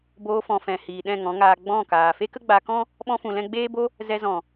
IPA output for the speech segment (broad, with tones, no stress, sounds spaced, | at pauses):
b oː˧ f ɔ̃˨ f ɛ̃˨ h iː˨ ɗ ɛ̃˦˨ ŋ ɔ̃˨˦ ŋ aː˧ ɡ͡b ɔ̃˦˨ k aː˨ f e˦ k ə˦ ɡ͡b a˧ k ɔ̃˦ | ɓ ɔ̃˦ f ũ˧ l ɛ̃˦ ɡ͡b eː˦ b o˦ | z ɛ˧ z ɔ̃˨